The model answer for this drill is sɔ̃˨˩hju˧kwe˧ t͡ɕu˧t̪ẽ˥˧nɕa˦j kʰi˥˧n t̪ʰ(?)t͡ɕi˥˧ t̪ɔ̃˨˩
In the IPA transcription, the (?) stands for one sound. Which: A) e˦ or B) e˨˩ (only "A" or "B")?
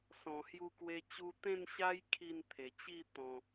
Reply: B